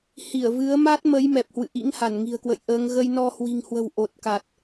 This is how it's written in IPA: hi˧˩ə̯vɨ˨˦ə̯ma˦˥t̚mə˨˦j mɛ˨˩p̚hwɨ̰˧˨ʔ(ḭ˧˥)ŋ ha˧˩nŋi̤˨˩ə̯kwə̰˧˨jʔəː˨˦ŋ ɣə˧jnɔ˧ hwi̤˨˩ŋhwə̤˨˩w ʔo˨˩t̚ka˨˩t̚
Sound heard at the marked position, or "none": ḭ˧˥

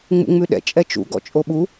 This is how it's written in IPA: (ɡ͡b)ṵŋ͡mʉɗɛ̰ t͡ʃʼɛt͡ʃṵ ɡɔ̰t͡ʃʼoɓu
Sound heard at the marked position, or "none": ŋ͡m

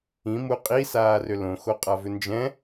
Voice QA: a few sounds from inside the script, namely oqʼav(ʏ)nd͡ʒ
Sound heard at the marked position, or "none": ʏ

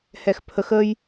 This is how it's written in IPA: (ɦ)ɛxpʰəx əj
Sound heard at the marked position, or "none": h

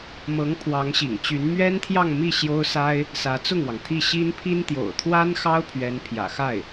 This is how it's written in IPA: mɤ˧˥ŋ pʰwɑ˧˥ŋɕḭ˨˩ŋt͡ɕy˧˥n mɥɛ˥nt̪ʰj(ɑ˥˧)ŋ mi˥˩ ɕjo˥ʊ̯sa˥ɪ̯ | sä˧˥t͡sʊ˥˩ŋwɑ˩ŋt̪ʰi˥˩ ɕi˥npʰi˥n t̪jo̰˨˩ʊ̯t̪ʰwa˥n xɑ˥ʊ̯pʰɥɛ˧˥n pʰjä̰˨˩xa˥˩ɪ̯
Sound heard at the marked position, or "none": ɑ˥˧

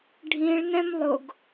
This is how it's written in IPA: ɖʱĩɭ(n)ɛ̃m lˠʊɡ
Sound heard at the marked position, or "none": n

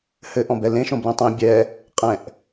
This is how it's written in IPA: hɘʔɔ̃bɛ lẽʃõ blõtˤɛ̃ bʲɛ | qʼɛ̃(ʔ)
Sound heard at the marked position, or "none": ʔ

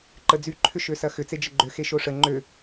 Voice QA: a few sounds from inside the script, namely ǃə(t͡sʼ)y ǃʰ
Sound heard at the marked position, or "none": d͡z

